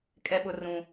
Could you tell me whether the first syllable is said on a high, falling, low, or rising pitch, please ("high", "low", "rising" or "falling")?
high